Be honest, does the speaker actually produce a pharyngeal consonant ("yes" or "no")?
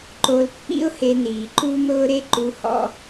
no